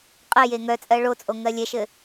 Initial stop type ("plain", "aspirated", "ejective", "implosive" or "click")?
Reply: ejective